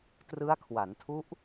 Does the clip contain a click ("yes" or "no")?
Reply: no